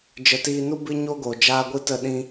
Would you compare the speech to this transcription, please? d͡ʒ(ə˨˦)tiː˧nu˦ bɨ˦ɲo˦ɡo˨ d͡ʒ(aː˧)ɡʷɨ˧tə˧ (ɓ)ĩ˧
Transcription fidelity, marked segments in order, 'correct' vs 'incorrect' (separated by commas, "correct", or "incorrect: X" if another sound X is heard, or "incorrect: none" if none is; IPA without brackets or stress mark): correct, correct, incorrect: ɗ